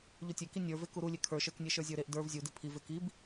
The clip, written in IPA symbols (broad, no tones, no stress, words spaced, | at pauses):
ʎutʲeki nʲə˞ve kuɾulʲe kʰə˞ʃə˞knʲe ʃə˞zʲə˞ɾeʔ də˞v zʲudi pʰive kib